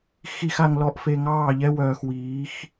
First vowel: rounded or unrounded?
unrounded